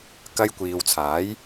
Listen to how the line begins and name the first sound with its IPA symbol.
k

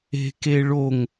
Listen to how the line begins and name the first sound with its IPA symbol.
e̤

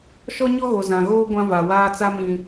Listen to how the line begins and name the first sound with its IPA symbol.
ʃ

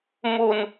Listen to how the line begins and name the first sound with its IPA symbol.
m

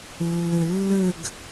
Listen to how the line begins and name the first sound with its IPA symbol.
lː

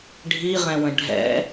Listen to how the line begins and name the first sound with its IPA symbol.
ɖʱ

